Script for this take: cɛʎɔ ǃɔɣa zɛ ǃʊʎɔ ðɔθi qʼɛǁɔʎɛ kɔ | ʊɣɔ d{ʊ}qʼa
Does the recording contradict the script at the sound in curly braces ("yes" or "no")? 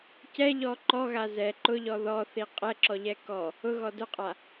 no